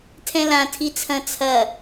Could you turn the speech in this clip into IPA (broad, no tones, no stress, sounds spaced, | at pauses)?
tʰ ɛ̃ l ã tʰ i t͡sʰ ɐ̃ t͡sʰ ɐ